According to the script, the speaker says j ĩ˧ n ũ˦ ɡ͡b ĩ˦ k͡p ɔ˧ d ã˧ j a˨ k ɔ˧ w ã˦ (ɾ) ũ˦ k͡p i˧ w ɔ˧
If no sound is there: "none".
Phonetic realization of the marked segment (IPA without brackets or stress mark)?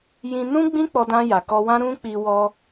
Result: ɾ